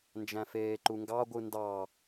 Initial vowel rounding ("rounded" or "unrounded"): unrounded